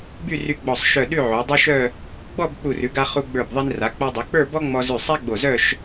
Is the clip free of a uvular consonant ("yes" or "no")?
no